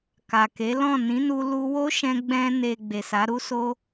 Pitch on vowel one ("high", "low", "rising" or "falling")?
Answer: low